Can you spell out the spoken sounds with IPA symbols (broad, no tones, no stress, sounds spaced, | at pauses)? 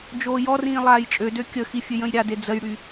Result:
d͡ʒ oː j ɔ r ĩː lˠ aː j t͡ʃʼ ø d ø kʲ ə x i fʲ ø j ə̃ j ɾʲ a d e d͡z ə j ɽ y